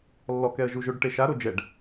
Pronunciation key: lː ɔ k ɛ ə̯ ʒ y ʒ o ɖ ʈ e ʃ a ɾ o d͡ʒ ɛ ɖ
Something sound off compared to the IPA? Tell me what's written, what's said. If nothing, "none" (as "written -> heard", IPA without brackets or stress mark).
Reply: y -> u